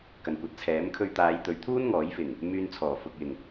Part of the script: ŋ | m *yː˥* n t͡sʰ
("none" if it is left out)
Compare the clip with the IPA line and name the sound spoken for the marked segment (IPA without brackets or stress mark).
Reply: yː˧